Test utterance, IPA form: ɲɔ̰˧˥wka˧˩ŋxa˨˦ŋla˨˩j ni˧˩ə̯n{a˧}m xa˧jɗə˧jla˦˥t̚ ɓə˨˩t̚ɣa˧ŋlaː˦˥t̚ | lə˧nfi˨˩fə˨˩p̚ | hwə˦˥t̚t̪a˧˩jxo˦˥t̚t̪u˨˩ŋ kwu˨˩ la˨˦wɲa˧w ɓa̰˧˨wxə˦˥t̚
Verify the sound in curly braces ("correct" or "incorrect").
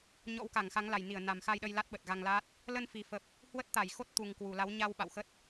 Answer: incorrect